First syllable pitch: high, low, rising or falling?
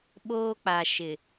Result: high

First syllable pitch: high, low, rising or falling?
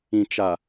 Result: low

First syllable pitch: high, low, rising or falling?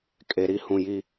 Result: low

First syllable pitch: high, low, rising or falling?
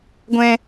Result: high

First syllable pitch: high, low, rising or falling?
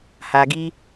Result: low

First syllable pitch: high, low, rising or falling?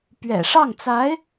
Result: low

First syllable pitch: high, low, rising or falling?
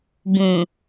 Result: low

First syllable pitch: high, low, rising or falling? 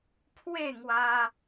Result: falling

